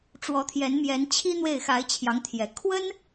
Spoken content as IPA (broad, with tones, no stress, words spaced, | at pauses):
ʈ͡ʂwɔ˧˥t̪ʰjɛ˧˥nmjɛ˧˥nt͡ɕʰi˥ n̪we˥˩ɪ̯xa˧˥ɪ̯t͡ɕʰjɑ˧˥ŋt̪ʰjɛ˨˩ kʰwə˥n